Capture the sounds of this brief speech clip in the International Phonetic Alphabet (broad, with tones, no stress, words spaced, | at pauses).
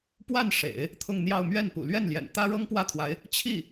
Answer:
pwa˥˩nʂḛ˨˩˦ɪ̯ | t̪ʰʊ˥˧ŋn̪jɑ˥˧ʊ̯ mɥɛ˥˩npṵ˨˩ lɥɛ˥˩nljɛ̰˨˩n t̪ä˥ɻɤ˥ŋpwä˥˩t̪ʰwa˧˥ɪ̯ | t͡ɕʰi˥˩